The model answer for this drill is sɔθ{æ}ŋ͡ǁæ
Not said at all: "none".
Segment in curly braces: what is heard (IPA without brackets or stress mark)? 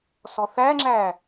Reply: æ